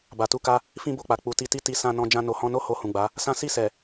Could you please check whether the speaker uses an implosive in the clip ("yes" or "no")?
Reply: no